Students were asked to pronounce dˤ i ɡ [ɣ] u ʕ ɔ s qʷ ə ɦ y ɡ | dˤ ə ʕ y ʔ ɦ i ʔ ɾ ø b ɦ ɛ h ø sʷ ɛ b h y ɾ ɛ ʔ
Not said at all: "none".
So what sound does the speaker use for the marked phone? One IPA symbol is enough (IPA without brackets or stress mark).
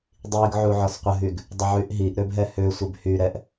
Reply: ʕ